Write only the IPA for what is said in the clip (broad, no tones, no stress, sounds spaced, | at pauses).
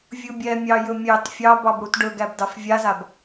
vʲ ɯ bʲ ɛ mʲ ɑ j ɵ mʲ ɑ t fʲ ɑ b ɑ b ɽ u t ɖ ɵ ɡ æ b d ɑ f vʲ a z a b